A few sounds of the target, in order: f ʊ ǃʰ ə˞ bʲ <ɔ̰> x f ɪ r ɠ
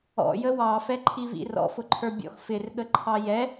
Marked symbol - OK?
yes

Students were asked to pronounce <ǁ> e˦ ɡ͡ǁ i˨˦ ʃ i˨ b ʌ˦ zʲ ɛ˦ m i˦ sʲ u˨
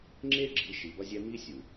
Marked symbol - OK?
no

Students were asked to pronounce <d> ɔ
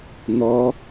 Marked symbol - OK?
no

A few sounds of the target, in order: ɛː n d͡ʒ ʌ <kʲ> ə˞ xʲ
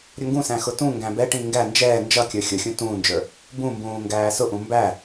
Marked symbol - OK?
yes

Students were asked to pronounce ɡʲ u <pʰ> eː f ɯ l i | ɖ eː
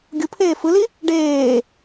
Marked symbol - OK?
yes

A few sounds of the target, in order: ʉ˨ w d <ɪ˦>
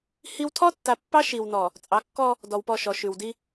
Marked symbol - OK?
no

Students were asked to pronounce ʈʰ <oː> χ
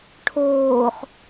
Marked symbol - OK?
yes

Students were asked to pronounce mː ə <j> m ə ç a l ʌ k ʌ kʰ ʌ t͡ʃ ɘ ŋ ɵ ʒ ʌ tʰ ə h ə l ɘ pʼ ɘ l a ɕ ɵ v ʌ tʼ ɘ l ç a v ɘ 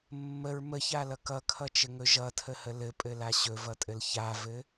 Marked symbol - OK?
no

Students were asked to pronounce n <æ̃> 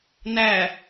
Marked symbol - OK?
no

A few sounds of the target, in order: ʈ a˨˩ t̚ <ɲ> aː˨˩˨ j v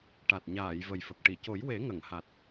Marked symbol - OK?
yes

